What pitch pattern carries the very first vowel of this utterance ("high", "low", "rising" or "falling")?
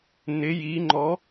rising